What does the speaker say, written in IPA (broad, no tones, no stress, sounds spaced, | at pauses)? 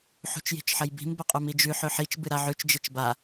ħ ṳ t͡ʃ j i̤ t͡ʃ ħ ɐ j b i̤ m b ɐ qʼ u m i d͡ʒ ʉ ħ ɵ ħ i t͡ʃ b ɨ ɾ a ʕ ʉ t͡ʃ d͡ʒ e t͡ʃ b a